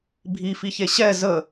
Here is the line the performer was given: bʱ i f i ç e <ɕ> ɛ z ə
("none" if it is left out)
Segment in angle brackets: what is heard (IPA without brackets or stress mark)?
ɕ